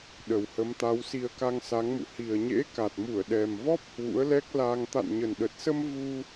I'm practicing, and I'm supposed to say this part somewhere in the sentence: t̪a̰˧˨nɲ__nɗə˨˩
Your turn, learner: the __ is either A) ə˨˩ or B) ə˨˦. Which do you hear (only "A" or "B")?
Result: A